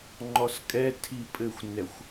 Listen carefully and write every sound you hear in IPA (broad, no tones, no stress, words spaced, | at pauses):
ŋ͡ǃɔskʼɛ tʰipʼɘxʷnɛxʷ